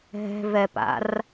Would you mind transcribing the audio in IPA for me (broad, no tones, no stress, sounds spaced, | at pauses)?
ɦ ɛ̤ v ɛ p a̰ r